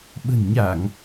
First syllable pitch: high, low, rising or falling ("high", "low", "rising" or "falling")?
low